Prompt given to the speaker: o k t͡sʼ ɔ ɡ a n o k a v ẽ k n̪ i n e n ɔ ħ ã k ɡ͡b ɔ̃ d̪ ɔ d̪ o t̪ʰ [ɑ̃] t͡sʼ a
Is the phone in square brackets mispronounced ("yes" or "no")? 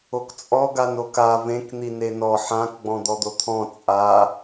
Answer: yes